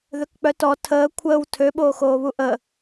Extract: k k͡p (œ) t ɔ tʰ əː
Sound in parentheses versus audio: correct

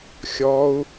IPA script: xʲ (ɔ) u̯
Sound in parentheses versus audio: correct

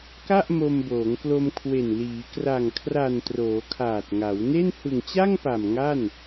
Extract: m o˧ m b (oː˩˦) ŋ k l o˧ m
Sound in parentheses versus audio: correct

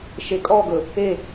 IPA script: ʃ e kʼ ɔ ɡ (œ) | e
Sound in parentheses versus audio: incorrect: ɵ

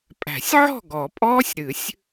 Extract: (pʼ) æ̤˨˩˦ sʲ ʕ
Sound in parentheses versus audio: correct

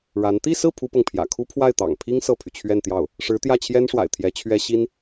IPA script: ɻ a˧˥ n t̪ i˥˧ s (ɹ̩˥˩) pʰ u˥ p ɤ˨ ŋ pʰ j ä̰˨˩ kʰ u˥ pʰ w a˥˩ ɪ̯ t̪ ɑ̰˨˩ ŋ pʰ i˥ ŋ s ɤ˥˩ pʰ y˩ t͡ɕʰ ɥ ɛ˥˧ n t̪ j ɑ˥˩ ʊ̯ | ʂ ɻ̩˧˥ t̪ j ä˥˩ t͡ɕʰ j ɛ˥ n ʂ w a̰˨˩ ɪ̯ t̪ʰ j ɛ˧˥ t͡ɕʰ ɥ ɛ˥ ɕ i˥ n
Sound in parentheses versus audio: correct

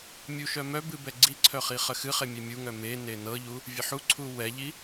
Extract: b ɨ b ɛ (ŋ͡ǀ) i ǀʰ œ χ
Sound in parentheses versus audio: incorrect: ɡ͡ǀ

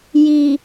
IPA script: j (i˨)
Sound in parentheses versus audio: correct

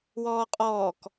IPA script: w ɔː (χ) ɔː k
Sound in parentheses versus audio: incorrect: qʼ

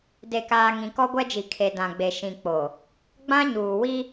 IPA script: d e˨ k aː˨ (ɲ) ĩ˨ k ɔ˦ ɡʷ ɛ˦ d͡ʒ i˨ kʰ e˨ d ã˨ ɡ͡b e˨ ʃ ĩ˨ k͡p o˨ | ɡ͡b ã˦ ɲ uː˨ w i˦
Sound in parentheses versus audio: incorrect: ŋ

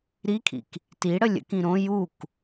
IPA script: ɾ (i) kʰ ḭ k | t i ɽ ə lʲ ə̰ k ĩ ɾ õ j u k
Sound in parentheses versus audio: correct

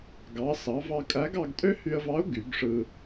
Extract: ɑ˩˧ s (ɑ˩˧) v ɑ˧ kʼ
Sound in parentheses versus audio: correct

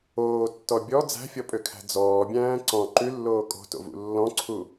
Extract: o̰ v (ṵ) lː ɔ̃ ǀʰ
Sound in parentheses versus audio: correct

